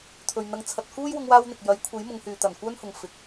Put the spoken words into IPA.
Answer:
t̪ʰ ɵ˨ ɥ n̪ ɐ˧ ŋ t͡sʰ ɐ˧ t̚ k uː˥ j w ʊ˧ ŋ w aː˥ w n̪ ɪ˨ k̚ j ɐ˨˥ j kʷʰ e˨˥ j m ʊ˨˧ ŋ h yː˨ t̪ ɐ˨˩ n kʷ œː˥ n h ʊ˨ ŋ f ɪ˨˥ k̚

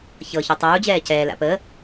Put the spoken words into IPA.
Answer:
ç ɤ ç u tˤ uː d͡ʑ ɛː c ɛː l a̰ p əː

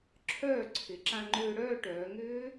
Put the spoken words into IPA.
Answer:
ǁʰ œː˥˩ ǀʰ ɪ˩˧ ǁ ã˧ ŋ͡ǃ ʏː˧ ɽ œː˥˧ ʈ œː˩˧ ŋ ʏː˦˥

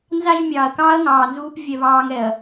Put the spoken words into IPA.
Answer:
n z a˦ ʒ mʲ ɑː˨ ɐ̯ k ɑː˦ ɐ̯ ŋ ɑː˨ n z uː˦ p vʲ ɛ˦ β ɑː˦ ŋ ɛ˨ ɐ̯

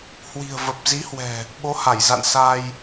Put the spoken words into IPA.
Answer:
h w i̤˨˩ ə̯ v ə˨˩ p̚ z i˨˦ h w ɛ̤˨˩ | ɓ o˨˦ h a˧˩ j z a̰˧˨ n s a˧ j

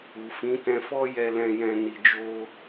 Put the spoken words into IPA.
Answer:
u˨ f ĩ˨˦ t ɛ̃˧ f ɔ˦ j ɛ˧ l ɛ̃˧ j ɛ̃˧ n i˧ d͡ʒ o˦

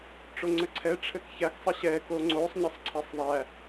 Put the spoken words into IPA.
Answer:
ʈ͡ʂ o ŋ͡ǀ ɘ ǀʰ ɛ ʈ͡ʂʰ ɘ k ç æ k sˤ ɘ ɕ ɛ k o ŋ͡ǀ o sˤ ɲ ɘ sˤ ǀʰ æ sˤ ðˤ æ

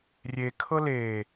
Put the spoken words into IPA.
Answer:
rʲ e kʰ ɤ l eː

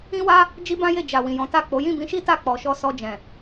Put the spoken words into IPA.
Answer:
ĩ˦ w a˦ | d͡ʒ i˦ b ã˦ j e˦˨ d͡ʒ a˨ w ĩ˨ j ɔ̃˨˦ t a˦˨ k͡p o˨˦ j ĩ˦˨ b ĩ˧ ʃ i˦ t a˦˨ k͡p ɔ˨ ʃ ɔ˧ s ɔ˧ d͡ʒ ɛ̃˨

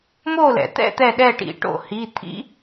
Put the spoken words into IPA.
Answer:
m o˥˨ l ɛ̰˩ t̪ ɛ̰˥˨ t̪ ɛ˧˩ ɗ ɛ˧˩ ʈ ḭ˨˩˦ ʈ o̰˧˩ h i˩˧˩ t̪ʰ ḭ˦

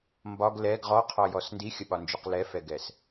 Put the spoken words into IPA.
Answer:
m b ɒ ɡ l ɛ ɡ ʁ ɔ qʰ ɔ j ɔ s n d i xʲ ə ɓ ɒ n d͡ʒ o q l ɛ f ɛ ɡ ɛ s

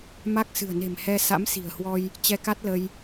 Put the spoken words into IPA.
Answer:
m a˦˥ k̚ s ɨ̤˨˩ ə̯ n e̤˨˩ m h ɛ˧ s a̰˧˥ m s i̤˨˩ ə̯ h w ɔ˧ j | t͡ɕ ɛ˧ k a˦˥ t̚ l ə˧ j

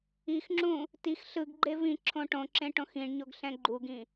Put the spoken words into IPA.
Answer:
i x ŋ͡ǁ ũ | t i x ɬ ɯ ɡ ɡ͡ǃ e v ĩ ǁʰ õ ʈ õ ǁ ẽ ʈ õ x ĩ ɳ ɲ o ɡ ɬ ɛ̃ ɡ͡ǃ u ɡ ĩ

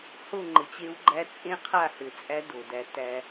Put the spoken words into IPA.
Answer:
h o˦˨ ŋ͡ǃ ɘ˨ t͡ɕ e˦ w ɡ͡ǃ æ˦ t͡sʼ ẽ˦ qʰ a˦˨ h ɘ˨ t͡sʼ æ˦ d o˨ d æ˦ t æ˦

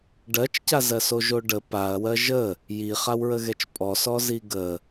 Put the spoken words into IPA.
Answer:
ɖ ɜ t͡ʃ c a z ɜ s o ʒ o ɖ ə p a ɐ̯ w ɜ ʒ ə | j i χ a w ɹ ə ɣ ɛ t͡ʃ pʼ ɔ s ɔ z i ɡ ə

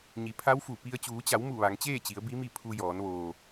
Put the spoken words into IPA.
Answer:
ɲ i˩˧ pʰ a˧˥ w f u˧˩ p i˧ ə̯ t͡ɕ uː˩˧ t͡ɕ a˩˧ w m u˧˩ ʋ a˩˧ ŋ t͡ɕ eː˥˨ t͡ɕ i˩˧ ə̯ b i˧˥ m i˥˨ pʰ u˧ j ɔː˩˧ n ʋ oː˩

